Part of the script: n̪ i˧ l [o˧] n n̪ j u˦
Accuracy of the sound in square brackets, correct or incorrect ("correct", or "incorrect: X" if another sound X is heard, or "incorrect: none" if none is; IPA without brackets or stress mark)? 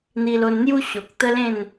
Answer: correct